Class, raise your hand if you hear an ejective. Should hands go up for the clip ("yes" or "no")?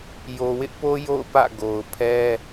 no